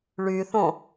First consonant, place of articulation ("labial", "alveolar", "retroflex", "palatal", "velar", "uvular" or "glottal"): retroflex